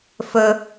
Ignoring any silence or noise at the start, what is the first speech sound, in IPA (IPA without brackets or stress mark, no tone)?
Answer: f